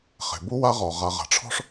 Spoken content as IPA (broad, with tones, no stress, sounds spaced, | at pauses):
χ e̤˩ b u˥ w a˦ ʁ ɔ˩ ʁ a˨ ʁ a̤˩ ʈ͡ʂʰ ɔ̤˥ ʂ